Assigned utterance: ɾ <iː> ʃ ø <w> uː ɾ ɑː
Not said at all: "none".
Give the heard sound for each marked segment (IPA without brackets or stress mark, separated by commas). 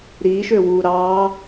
iː, w